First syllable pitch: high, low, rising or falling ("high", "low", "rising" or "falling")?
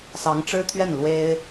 rising